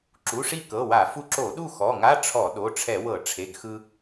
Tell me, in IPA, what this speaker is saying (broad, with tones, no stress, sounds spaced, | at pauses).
ǁ u˩˧˩ ʂ i˥˨ k ɤ˩˧˩ w a˧˩˧ f u˧ ǁ o˧˩˧ ɗ u˥˨ x ɔ˩˧˩ ŋ a˧˥˧ ʈ͡ʂʰ ɔ˧˩˧ ɗ o˩˧˩ ʈ͡ʂʰ ɛ˧˩˧ w ɤ˧˩˧ ʈ͡ʂʰ e˩˧˩ ɡ x ɯ˧